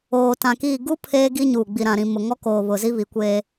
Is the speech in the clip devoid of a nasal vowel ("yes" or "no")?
no